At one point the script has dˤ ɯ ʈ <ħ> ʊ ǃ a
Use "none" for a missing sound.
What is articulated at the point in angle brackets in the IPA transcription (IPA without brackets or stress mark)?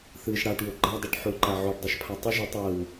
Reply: ħ